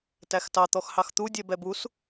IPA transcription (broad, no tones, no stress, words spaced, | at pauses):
tæxtɑ t̪ɔxhɑxt̪u dʲɛbɛbus